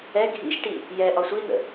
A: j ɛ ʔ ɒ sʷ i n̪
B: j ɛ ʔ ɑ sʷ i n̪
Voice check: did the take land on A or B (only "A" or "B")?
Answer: A